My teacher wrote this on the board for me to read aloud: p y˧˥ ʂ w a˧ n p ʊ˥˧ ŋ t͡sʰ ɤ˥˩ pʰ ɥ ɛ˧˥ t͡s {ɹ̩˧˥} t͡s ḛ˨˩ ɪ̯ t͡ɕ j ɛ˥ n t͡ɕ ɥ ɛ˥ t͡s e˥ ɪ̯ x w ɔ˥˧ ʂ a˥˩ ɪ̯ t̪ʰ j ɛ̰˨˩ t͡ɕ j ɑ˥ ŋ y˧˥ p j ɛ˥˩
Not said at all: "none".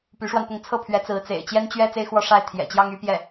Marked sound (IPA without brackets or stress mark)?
ɹ̩˧˥